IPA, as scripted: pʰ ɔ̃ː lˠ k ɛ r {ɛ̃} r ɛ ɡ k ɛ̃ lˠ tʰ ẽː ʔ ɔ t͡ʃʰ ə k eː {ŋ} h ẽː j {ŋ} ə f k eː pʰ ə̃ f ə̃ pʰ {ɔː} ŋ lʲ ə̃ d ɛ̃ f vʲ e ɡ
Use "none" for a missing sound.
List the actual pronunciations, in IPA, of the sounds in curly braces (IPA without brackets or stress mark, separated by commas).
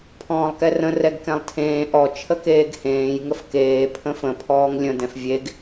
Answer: ə̃, ɡ, ŋ, ɔː